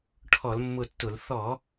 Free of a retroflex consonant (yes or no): no